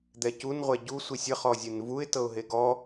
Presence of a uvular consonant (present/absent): present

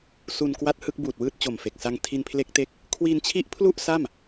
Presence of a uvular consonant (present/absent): absent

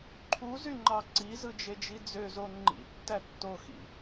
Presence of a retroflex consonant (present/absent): absent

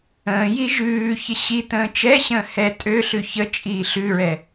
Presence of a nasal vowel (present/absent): present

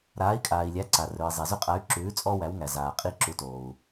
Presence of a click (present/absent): present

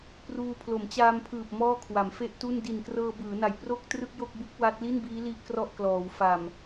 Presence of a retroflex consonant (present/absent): absent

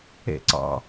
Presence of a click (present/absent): present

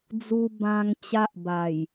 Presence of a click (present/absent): absent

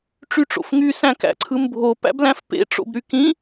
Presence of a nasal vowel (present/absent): present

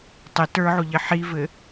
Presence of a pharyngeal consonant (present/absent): present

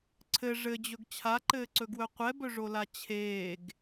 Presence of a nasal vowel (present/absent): absent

